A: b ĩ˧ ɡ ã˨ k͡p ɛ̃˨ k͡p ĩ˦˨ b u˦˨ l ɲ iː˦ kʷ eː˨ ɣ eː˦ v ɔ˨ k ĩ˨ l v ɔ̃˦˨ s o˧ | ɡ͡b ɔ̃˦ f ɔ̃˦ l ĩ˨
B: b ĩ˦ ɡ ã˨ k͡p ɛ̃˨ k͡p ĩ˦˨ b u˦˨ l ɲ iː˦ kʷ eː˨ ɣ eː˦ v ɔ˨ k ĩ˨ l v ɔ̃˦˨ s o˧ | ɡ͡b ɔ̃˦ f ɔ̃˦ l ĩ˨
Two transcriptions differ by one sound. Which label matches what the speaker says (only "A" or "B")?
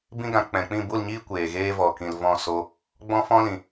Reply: B